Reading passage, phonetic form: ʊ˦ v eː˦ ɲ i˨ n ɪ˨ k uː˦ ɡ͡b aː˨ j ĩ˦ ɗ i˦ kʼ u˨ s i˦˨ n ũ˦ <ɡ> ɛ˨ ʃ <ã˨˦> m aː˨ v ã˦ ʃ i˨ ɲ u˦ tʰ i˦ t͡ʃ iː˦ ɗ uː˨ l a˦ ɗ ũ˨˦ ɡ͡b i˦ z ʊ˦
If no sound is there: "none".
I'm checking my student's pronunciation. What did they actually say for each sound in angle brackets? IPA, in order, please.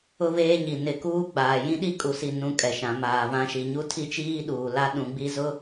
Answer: kʼ, ã˨˦

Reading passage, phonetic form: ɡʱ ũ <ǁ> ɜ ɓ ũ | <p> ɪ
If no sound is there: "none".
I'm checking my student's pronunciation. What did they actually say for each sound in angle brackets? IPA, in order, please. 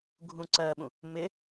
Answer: ǀ, m

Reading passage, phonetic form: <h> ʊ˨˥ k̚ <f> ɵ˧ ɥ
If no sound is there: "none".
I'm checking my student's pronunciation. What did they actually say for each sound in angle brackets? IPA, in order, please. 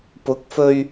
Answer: p, f

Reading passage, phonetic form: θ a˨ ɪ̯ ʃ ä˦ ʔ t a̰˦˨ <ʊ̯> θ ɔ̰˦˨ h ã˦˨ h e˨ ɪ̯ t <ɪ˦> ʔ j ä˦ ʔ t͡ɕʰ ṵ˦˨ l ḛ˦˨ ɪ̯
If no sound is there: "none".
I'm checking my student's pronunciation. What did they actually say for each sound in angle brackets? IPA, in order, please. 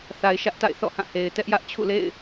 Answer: ɪ̯, ɛ˦

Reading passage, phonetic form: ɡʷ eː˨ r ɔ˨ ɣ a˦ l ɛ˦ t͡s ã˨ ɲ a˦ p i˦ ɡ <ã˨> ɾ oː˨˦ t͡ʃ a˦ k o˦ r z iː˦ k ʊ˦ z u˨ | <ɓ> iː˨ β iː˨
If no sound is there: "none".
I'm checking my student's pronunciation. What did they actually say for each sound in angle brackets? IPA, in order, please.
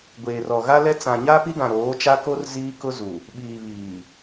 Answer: ã˨, ɓ

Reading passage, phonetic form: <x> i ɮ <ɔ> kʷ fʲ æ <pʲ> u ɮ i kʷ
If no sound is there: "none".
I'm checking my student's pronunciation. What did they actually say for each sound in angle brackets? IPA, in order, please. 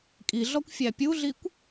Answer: kʼ, ɔ, pʲ

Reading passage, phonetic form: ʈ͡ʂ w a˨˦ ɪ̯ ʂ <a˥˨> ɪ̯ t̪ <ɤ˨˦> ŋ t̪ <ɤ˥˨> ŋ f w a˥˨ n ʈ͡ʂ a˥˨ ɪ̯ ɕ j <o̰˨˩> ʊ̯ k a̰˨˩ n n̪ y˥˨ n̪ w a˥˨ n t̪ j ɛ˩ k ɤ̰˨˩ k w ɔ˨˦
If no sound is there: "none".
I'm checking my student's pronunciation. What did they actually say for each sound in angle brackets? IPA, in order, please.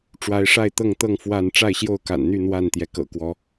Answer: a˥˨, ɤ˥˨, ɤ˥˨, o˥˨

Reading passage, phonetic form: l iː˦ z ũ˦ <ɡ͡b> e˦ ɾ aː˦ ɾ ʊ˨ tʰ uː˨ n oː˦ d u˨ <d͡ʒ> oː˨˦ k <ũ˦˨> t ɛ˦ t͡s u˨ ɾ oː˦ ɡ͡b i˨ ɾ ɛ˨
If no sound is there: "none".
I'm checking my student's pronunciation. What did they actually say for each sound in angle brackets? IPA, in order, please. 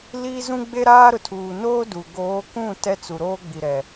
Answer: ɡ͡b, ɡ, ũ˦˨

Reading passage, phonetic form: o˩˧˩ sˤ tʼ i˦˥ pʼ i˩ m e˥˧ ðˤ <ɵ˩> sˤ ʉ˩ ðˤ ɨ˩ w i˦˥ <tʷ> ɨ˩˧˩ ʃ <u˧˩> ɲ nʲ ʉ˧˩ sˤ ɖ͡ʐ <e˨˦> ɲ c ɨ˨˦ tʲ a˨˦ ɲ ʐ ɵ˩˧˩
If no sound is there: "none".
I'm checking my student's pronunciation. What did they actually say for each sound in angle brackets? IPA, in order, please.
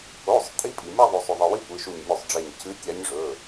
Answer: o˩, tʷ, u˧˩, e˧˩

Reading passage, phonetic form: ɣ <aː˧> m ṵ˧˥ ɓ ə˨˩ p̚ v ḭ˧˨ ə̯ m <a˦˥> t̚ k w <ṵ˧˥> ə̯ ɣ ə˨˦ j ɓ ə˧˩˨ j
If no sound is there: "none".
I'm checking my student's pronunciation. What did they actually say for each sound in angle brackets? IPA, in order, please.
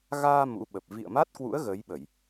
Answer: aː˧, a˦˥, ṵ˧˥

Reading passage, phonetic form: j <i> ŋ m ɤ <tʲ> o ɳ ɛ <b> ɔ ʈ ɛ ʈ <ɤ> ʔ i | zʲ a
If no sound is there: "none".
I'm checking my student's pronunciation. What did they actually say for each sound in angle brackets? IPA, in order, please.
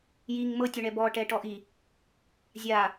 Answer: i, tʲ, b, ɔ

